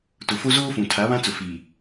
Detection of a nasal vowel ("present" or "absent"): present